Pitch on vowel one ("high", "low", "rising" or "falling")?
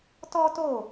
high